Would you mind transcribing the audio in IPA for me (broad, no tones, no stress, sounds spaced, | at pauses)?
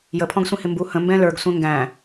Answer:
j ə pʰ ɔ̃ ɡ sʷ ĩ h ɪ m b u h ə̃ m b ɛ̃ l ə˞ ɡ sʷ ɛ̃ ŋ ɡ æ̃